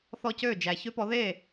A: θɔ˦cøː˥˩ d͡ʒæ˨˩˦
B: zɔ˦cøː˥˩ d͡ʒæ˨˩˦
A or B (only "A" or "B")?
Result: A